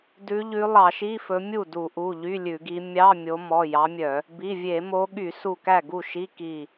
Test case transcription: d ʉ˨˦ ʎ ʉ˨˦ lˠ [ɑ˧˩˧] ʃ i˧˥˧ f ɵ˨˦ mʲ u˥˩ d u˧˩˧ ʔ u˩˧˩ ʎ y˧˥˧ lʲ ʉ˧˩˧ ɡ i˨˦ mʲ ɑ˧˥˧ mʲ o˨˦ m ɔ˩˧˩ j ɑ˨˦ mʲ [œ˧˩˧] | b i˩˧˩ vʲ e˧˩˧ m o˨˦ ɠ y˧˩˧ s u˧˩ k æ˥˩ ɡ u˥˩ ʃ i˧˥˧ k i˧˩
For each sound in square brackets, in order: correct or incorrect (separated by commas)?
correct, correct